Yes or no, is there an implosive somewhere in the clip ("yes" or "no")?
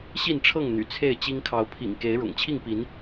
no